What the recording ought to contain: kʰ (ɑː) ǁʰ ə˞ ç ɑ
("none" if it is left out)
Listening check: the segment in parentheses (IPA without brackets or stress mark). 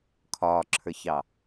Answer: ɒː